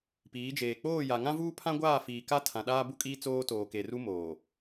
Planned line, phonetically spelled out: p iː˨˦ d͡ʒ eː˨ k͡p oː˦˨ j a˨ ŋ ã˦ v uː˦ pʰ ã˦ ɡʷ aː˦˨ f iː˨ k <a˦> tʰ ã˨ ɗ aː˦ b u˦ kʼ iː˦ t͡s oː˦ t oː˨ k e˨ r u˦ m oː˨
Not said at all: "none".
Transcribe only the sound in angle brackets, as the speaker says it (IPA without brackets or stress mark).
a˦